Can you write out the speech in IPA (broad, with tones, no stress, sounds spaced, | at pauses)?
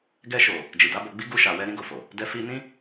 ɡ ɛ˧ ʃ o˨ | d͡ʒ i˨ d a˨˦ b o˧ ɡ͡b i˦ ɡ u˧ ʃ a˨ w ɛ˧ ɾ ĩ˦ ɡ o˧ f o˨ | d ɛ˧ f i˧ n ĩ˦